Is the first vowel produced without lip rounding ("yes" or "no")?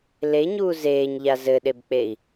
yes